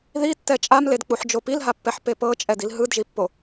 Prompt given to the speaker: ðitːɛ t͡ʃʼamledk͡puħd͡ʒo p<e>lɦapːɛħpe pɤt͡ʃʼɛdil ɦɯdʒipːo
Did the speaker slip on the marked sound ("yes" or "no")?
yes